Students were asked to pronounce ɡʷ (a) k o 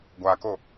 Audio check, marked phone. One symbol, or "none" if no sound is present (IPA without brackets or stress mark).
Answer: a